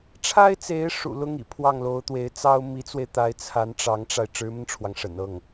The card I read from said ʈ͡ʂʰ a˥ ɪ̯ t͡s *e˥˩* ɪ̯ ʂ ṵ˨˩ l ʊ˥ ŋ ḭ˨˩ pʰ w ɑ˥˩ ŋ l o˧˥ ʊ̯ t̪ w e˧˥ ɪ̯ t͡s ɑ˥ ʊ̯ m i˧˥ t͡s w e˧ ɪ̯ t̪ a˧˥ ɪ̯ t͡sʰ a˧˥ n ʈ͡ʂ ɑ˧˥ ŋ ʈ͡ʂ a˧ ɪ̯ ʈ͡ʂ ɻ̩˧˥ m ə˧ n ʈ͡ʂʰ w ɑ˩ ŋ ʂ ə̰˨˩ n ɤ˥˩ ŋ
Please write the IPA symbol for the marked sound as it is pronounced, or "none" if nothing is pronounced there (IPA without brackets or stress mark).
e˧˥